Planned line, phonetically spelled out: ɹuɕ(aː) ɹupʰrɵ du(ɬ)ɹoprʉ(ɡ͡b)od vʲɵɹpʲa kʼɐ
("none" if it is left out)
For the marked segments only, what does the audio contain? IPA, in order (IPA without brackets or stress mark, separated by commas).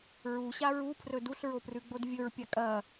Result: a, ɬ, ɡ͡b